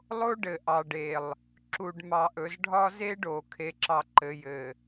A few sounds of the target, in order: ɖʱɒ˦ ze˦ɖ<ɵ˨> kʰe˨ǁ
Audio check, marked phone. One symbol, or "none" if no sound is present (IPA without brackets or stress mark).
o˨